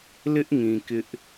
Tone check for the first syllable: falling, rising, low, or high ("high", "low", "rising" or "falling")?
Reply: high